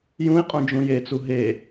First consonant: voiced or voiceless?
voiced